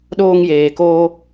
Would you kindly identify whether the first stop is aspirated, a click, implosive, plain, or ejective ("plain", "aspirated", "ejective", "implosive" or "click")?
implosive